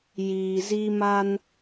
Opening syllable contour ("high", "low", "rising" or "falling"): low